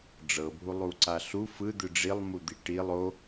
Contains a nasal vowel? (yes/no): no